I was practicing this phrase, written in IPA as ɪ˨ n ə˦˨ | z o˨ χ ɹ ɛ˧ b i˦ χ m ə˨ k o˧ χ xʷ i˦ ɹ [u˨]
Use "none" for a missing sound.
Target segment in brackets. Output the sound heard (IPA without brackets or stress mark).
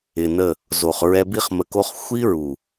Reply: u˨